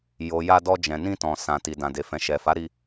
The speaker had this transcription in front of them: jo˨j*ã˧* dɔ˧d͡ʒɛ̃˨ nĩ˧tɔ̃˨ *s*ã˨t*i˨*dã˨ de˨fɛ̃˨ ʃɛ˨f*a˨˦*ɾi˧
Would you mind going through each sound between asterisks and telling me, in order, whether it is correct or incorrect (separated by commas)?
incorrect, correct, correct, correct